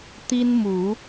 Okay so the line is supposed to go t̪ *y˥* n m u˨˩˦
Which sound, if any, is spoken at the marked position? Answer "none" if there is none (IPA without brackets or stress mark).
i˥